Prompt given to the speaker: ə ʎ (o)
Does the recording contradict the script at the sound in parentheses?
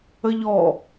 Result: yes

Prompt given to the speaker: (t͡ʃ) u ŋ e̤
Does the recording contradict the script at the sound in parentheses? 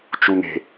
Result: no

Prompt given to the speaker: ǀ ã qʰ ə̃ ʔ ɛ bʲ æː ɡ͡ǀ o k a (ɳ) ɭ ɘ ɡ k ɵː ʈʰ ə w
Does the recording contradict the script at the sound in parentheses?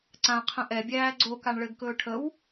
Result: no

